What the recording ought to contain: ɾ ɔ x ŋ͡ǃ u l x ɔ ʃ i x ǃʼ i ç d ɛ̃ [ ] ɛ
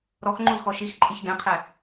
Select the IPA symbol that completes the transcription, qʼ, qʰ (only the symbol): qʰ